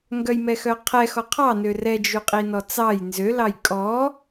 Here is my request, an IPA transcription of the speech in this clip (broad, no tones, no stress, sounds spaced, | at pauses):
ŋ ɡ œ j m ɛ x œ qʰ ɛ x ɔ qʰ ɑ n ø r ɛ d͡ʒ ʉ qʼ i n ɔ t͡s ɑ j n z ø l ɑ j kʼ ɔ